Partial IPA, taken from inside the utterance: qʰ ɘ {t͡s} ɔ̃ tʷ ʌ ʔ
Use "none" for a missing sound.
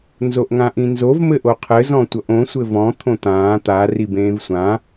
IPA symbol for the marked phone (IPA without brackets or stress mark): z